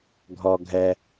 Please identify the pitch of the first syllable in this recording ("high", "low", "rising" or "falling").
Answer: high